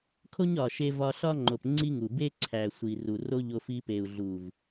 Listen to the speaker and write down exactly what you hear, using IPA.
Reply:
kʰo˦ɲɒ˨ʃe˧ vɒ˧ɬɒ˦ŋ͡ǃo˨p ŋ͡ǀi˦ŋu˨ be˦ǀʰæ˨sʷi˨ ru˨ro˦ʎo˧ fi˧pe˨u̯ɮu˨v

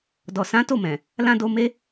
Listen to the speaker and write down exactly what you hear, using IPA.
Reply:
dɔ˨ sã˨˦to˦˨mɛ̃˨ | lã˧ do˧me˦

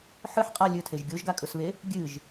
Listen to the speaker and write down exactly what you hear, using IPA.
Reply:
ħɨħqʼa lʲɵtʰeʒ ɡʲoʒɡakʼɵsβe | ɡʲɨʒ

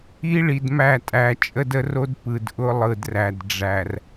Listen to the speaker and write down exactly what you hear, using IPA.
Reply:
i˦ɭi˨dmæ˦˨tʼæ˨ t͡ʃʼə˦də˦ro˦d pɯ˨d ʔʊ˦lˠɯ˨dræ˨d ɖ͡ʐæ˨r

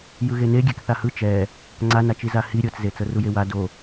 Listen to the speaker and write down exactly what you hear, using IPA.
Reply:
jɯɣene ɡʲɛkθahɯ t͡ʃɛ | ŋ͡ǀanat͡ʃi zahi ɾʲɤt͡szet͡sɤ rujewa do

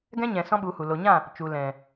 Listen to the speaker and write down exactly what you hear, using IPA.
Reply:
ɡɛ̃˦ɲɛ̃˨ sɔ̃˦ɓu˨˦hu˨ lo˨ɲã˦˨ | t͡ʃu˨ lɛ̃˨

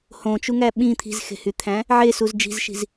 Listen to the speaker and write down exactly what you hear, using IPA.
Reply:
hõt͡ʃuŋæ ɓĩ t̪ʰi̤zxe̤hyt̪ʰæ̃ | ʕesuz d͡ʒi̤zʃi̤z

